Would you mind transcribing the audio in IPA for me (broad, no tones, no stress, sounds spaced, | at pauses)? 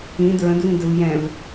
ĩ d ɹ ə̃ d v ĩ d ə v j ɛ̃ v